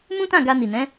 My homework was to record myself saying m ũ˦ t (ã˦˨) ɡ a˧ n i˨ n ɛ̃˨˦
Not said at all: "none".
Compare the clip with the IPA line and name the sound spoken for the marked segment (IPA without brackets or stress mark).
ã˦˨